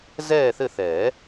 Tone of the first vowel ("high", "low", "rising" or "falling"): falling